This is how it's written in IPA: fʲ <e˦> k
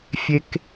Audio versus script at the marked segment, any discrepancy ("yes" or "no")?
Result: no